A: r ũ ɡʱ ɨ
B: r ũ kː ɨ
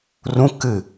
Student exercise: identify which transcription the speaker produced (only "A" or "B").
B